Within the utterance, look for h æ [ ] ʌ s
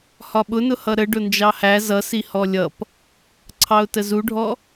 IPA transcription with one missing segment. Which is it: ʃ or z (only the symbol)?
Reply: z